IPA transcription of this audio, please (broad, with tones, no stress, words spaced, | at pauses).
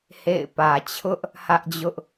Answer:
hḛ˦˨ɪ̯ pä˨t͡ɕʰʊ˦ʔ | hä˦ʔd͡ʑʊ˦ʔ